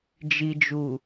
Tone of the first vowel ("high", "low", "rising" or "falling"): low